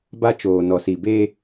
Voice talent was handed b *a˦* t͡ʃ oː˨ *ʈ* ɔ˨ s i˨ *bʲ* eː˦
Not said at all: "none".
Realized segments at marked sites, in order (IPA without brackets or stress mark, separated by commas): a˦, n, b